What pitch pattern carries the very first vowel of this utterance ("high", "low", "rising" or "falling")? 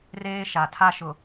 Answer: high